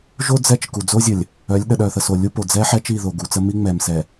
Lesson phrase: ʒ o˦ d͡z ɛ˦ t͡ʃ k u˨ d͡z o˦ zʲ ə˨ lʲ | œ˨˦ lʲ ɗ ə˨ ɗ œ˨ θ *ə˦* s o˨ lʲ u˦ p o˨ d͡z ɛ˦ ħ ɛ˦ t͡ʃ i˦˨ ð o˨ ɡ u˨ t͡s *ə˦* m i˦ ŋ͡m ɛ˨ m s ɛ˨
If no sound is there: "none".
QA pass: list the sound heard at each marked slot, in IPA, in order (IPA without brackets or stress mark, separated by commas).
ə˨, ə˦